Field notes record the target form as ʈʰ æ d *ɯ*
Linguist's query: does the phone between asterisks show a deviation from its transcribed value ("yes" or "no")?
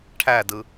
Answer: no